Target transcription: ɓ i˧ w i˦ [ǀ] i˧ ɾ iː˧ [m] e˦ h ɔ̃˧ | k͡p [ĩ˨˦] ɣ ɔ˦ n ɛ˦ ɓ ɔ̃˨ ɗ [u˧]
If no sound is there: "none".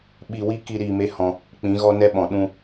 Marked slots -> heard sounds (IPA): k, m, ĩ˨˦, ũ˧

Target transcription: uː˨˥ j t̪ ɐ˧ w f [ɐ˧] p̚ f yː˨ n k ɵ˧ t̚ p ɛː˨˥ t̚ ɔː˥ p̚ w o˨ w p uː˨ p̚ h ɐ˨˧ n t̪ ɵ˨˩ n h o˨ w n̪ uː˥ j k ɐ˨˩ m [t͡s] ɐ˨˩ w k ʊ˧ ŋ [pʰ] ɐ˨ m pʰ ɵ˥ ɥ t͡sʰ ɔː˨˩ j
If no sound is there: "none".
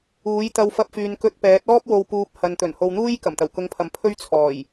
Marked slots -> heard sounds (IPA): ɐ˧, t̪, pʰ

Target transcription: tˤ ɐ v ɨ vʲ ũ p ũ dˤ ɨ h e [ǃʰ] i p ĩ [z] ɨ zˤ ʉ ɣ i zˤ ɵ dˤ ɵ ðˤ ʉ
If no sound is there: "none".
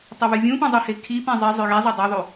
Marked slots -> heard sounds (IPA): kʰ, zˤ

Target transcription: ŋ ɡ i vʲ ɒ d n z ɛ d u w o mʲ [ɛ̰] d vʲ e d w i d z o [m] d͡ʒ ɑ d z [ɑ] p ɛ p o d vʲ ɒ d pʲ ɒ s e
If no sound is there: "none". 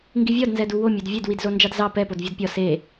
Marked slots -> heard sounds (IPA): ɛ, n, ɑ

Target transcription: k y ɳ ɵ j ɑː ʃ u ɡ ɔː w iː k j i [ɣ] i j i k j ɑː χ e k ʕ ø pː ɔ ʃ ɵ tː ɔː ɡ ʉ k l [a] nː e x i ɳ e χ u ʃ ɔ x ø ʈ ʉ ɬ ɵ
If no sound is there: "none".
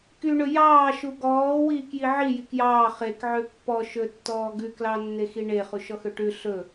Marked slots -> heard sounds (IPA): ʕ, ɑ

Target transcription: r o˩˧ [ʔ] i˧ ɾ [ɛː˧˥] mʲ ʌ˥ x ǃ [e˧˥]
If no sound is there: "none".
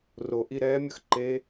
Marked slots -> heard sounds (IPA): ʔ, ɛː˧˥, e˧˥

